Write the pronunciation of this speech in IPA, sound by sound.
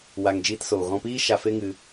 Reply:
w a˨ ŋ d͡ʒ iː˧ t s oː˨ ɣ ɔ̃˧ p iː˦ ʃ a˧ f e˦ ŋ ɨ˧

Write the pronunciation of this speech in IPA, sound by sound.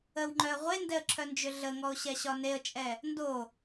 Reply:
ə w ŋ͡ǃ œ ə̯ ʁʷ e n d ɛ ə̯ ǁʰ œ n d͡ʒ ʏ ɮ ə ŋ ɔ ʊ̯ ɕ ɛ ɕ ɒ n e ə̯ t͡ʃʼ ɛ | n d o

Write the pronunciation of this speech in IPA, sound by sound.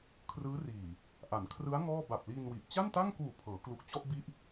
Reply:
kʰ r ɯː˦˥ r iː˨˩ | ʔ a˩˦ n kʰ r ɯ˦˥ a̯ ŋ ɔː˥˩ b a˨˩ p̚ l iː˧ n w i˨˩ ʔ t͡ɕ a˥˩ n t a˥˩ ŋ k uː˨˩ pʰ ɤː˩˦ k l u˨˩ k̚ t͡ɕ ɔ˥˩ ʔ b i˦˥ ʔ

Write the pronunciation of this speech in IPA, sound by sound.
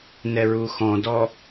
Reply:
n ɛ ɹ u x ɔ̃ d ɔ

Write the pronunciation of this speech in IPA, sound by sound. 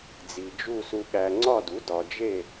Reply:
d͡z i˨ d͡ʒ u˦˨ s u˨ ɠ æ˨ ŋ͡ǀ ɒ˦˨ d u˩˥ d ɒ˨ d͡ʒ e˦˨

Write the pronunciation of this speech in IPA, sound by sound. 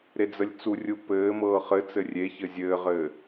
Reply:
ɾ e d͡z ə lʲ t͡s u rʲ u p ɘː m ɤː χ ɘ t͡s ɘ rʲ e ç ɘ zʲ ɘː ʁ ɘː

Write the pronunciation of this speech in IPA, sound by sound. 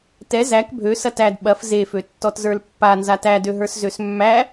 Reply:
t ɛ z æ k bʱ ø s ɐ t æ d ɓ ɐ f z e f ø tː ɔ t z ə˞ l pː a n z a t æ d ø ɦ ə˞ s z ø s mː æ

